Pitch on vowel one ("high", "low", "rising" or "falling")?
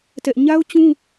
high